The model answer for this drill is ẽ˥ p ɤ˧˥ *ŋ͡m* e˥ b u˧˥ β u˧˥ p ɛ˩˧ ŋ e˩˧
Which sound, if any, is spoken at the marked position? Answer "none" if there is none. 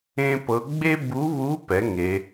ɡ͡b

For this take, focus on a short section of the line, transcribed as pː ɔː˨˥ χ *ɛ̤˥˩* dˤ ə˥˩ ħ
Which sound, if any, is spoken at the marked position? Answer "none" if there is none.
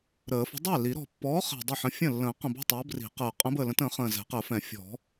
ɛ̤˨˩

